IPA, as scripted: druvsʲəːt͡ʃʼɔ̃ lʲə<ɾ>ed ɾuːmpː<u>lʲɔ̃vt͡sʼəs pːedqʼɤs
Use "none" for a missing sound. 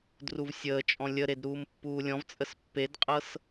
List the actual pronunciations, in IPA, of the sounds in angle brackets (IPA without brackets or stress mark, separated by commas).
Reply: ɾ, uː